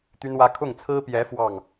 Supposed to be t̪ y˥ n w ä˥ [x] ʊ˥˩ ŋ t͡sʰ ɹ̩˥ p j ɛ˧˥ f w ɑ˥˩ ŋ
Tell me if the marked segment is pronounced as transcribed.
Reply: no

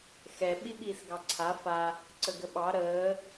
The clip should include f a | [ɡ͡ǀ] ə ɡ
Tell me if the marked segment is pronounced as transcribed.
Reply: no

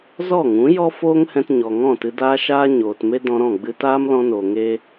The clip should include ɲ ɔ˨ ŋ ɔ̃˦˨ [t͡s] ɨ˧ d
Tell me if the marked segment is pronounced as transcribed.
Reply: no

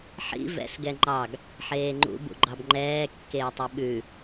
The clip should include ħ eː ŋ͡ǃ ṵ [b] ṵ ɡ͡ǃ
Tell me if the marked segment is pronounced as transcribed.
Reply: yes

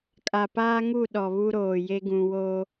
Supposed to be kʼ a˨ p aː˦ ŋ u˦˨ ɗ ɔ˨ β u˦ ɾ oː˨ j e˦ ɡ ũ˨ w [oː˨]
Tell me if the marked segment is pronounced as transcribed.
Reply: no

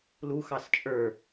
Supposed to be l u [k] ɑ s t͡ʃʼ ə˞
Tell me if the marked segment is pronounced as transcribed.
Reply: no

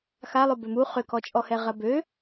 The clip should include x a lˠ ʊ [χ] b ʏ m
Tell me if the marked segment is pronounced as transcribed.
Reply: no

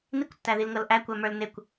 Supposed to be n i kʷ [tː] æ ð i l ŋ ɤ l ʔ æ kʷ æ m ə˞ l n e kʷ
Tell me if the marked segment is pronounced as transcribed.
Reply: yes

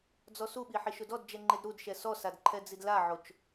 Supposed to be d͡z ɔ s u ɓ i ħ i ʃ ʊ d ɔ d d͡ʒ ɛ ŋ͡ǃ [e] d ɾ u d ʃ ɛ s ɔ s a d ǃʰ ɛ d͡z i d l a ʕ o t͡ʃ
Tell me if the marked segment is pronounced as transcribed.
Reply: yes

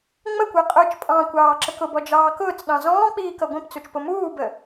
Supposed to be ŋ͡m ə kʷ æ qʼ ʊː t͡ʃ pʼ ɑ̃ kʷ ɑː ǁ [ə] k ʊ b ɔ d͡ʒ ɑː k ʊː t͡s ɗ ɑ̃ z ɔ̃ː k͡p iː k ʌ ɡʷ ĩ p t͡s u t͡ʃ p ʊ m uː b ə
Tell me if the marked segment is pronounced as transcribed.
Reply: yes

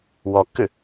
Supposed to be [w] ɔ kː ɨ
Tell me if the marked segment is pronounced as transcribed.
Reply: yes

